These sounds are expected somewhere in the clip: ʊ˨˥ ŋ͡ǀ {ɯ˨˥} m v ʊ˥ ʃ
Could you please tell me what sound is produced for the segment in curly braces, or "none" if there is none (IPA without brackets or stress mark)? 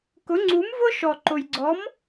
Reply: u˨˥